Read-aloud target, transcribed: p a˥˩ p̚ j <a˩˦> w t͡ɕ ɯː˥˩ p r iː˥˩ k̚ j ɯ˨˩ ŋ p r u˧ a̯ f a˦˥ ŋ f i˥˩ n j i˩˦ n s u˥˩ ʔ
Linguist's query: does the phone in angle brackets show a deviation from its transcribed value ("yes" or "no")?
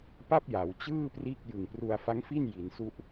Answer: no